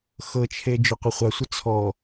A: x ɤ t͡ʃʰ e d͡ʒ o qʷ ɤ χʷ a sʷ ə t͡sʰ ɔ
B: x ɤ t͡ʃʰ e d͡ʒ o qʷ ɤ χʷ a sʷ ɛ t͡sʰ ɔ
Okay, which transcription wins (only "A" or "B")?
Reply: A